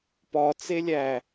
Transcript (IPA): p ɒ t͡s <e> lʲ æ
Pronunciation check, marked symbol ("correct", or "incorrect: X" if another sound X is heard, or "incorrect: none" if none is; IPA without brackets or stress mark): correct